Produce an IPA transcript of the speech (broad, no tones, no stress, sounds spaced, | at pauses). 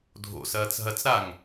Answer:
dʱ o̰ s ɐː t͡s ɦ ɐ t͡s ɾ a ŋ